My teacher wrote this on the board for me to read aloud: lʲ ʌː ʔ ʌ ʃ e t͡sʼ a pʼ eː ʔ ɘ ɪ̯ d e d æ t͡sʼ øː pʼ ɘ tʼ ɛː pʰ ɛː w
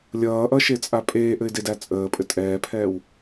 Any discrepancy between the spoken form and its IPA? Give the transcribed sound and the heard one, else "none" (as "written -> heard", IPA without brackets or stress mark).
øː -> əː